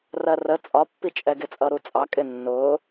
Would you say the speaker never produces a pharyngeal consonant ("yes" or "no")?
yes